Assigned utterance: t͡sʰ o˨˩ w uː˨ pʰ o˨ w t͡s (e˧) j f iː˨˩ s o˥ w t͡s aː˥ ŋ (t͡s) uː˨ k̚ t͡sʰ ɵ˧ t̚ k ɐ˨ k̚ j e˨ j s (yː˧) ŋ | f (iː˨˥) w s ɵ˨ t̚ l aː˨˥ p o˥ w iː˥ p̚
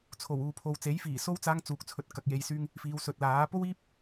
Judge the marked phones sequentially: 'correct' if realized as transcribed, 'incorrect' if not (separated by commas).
incorrect, correct, correct, incorrect